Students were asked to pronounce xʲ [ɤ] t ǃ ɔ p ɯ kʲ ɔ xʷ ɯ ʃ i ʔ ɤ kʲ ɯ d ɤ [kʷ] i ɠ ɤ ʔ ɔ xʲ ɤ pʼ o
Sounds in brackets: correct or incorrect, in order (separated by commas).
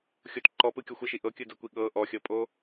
incorrect, correct